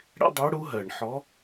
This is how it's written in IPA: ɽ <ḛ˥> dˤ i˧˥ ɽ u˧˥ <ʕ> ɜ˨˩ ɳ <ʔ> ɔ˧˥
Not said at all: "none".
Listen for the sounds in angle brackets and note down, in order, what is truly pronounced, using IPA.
ḛ˥, ɦ, ħ

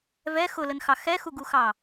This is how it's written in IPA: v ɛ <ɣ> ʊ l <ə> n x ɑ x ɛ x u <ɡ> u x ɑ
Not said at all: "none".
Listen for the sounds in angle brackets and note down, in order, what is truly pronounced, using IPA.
x, ə, ɡ

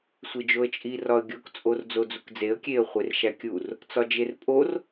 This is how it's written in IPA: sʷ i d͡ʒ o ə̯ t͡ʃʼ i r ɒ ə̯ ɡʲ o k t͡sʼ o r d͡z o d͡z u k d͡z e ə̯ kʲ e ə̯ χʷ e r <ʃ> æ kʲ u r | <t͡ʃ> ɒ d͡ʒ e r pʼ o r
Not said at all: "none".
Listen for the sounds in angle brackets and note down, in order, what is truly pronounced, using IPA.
ʃ, t͡s

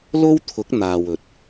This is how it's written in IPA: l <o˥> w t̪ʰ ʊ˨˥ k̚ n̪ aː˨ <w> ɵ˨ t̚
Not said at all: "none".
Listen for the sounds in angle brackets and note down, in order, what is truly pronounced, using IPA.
o˥, w

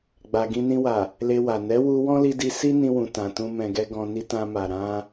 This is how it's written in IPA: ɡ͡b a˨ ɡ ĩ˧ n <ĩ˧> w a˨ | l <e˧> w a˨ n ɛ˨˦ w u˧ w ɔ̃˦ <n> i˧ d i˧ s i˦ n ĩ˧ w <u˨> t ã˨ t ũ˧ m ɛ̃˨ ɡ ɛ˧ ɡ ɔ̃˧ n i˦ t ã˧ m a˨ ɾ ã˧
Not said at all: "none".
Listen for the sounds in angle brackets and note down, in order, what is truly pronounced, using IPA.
ĩ˧, e˧, l, ũ˨

